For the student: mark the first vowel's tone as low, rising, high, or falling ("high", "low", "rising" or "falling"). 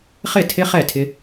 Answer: falling